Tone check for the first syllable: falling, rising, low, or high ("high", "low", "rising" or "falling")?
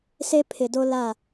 high